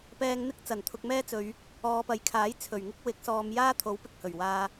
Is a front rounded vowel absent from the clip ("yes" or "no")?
yes